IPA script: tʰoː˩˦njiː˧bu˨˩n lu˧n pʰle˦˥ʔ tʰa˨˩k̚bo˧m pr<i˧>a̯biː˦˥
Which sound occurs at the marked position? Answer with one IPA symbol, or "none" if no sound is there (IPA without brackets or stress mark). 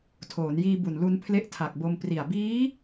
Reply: i˨˩